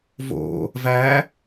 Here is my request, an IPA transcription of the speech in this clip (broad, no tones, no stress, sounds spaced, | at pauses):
v o̰ | v æ